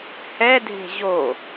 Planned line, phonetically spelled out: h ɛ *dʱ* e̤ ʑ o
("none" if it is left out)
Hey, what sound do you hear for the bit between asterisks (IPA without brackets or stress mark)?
dʱ